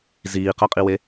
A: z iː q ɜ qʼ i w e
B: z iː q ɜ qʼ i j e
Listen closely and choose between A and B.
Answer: A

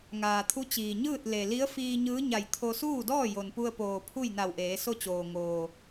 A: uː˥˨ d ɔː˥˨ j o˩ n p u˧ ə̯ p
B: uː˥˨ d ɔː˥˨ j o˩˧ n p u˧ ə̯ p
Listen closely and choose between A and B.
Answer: A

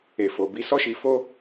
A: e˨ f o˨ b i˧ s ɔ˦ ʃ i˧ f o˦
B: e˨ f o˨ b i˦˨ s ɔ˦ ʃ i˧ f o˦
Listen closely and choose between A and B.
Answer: A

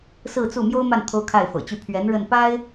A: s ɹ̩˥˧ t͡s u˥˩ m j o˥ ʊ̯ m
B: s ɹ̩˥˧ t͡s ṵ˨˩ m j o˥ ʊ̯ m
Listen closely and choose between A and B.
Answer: A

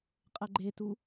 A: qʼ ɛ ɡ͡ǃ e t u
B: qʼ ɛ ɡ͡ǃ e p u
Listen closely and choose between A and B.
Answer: A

